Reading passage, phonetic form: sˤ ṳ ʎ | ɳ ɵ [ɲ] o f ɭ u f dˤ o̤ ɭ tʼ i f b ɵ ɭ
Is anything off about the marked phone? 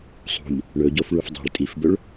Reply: yes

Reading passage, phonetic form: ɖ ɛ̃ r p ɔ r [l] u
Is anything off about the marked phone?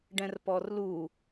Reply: no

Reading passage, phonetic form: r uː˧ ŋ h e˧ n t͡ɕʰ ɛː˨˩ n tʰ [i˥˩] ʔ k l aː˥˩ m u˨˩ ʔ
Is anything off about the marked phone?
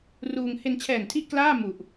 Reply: no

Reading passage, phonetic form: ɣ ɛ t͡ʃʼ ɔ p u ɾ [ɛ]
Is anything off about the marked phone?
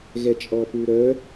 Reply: yes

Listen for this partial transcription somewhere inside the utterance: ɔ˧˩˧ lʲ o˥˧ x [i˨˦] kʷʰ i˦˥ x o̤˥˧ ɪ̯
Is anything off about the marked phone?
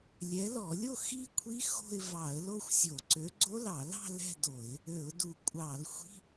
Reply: yes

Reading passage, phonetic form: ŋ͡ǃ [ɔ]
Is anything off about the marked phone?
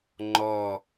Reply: no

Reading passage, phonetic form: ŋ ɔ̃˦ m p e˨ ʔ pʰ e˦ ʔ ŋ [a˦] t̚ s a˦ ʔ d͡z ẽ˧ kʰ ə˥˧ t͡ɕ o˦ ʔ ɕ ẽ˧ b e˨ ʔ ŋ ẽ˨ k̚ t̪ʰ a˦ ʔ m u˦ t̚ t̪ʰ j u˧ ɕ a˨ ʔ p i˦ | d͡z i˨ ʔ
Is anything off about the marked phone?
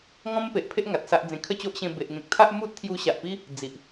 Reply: yes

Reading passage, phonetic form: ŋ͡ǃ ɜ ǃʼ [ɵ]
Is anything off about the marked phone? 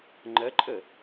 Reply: yes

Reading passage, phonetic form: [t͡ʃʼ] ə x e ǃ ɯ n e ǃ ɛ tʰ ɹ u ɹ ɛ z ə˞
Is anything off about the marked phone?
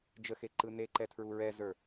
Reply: yes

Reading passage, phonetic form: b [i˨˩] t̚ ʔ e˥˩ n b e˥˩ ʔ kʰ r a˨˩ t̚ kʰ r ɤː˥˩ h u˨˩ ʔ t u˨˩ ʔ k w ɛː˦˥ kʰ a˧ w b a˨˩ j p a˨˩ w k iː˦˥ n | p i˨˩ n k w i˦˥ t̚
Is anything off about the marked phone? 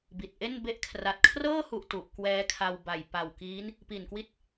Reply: no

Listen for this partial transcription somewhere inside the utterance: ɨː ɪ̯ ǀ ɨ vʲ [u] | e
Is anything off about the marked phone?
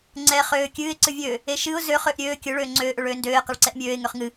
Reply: yes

